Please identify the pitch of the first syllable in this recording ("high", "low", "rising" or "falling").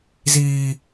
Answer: high